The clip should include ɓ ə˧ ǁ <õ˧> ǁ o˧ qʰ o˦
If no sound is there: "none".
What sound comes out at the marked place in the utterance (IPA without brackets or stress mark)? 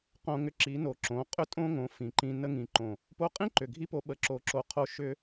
o˧